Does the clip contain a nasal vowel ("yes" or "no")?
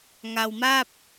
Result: no